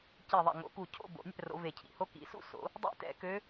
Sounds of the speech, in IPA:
c i˧˩ ðˤ ɛ̰˧˩ ŋ o̰˨˩˦ k u˧˩ cʰ o̰˥˧ b o̰˨˩˦ nʲ ɛ̰˥˧ r o̰˨˩˦ v e˧˩ cʰ ḭ˥˧ h o˧˥ k ḭ˨˩˦ s ṵ˥˧ s o̰˨˩˦ | dˤ ḭ˧˥ t ɛ̰˨˩˦ k ø˧˥

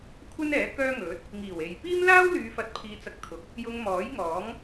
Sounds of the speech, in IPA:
kʷʰ ɐ˥ n ɛː˨˥ k œː˥ ŋ ɵ˨˥ t̚ | ŋ iː˨˩ w e˨ j p iː˥ m l aː˥ w l yː˨˧ f ɐ˨˥ t̚ pʰ iː˧ t͡s ɐ˧ k̚ t̪ʰ ʊ˨˥ k̚ | j ʊ˧ ŋ m ɔː˨˥ j ŋ ɔː˨˥ ŋ

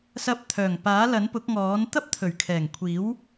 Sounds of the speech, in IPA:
s ɐ˧ p̚ t̪ʰ œː˨˩ ŋ p aː˨˥ l ɐ˨˥ n p ʊ˨˥ k̚ ŋ ɔː˨˥ n t̪ ɐ˥ p̚ t̪ʰ ɵ˨˩ ɥ kʰ ɛː˨˩ ŋ kʷʰ iː˨˥ w

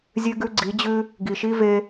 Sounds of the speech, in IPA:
zʲ ʉ˦ ɡ ʉ˦ ɡ͡ǀ i˨˦ d͡ʑ ʉ˦ | ɡ i˨ ʃ i˦ v e˦

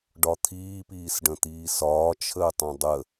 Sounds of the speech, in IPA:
ɖ ɒ t̪ʰ iː p iː s ɖ ə̃ t̪ iː s ɒː t͡ʃʰ əː tˤ ẽ dˤ ə

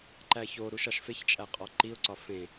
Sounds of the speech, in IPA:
ǃ æ ç o ɾ u ʃ ɒ ʃ f e ç t͡ʃʼ æ qʼ ɒ ǃ i ʊ̯ ǀ ɒ f ẽ

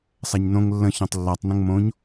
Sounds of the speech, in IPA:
sˤ a ɲ n õ ŋ lː ə̃ ç õ tˤ lː a tˤ n ə̃ ŋ m õ ɲ

